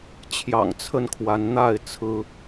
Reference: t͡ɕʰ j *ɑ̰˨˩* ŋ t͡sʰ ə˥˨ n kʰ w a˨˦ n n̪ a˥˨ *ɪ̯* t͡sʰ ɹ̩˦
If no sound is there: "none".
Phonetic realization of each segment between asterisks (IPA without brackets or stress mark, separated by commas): ɑ̰˨˩, ɪ̯